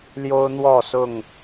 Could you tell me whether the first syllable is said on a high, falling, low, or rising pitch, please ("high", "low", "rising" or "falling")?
high